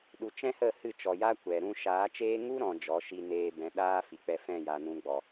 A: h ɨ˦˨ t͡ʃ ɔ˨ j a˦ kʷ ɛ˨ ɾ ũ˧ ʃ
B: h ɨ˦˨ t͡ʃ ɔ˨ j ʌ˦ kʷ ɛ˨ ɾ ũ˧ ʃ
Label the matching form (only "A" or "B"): A